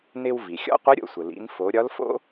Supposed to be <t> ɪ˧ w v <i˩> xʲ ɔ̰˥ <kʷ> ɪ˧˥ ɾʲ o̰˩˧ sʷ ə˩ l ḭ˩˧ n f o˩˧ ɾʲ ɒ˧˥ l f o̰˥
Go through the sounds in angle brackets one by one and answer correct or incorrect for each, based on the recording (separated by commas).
incorrect, correct, incorrect